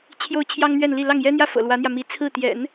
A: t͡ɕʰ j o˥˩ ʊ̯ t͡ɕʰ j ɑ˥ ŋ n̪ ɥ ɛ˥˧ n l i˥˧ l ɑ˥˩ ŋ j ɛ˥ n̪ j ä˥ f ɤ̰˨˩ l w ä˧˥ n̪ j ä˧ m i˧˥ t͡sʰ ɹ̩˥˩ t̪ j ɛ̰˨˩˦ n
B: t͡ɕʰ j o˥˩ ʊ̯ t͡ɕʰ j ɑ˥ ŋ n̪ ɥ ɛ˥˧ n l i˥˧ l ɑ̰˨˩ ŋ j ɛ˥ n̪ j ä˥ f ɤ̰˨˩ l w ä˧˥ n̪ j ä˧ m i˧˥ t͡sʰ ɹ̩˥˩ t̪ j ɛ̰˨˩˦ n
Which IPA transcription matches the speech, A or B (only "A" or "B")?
A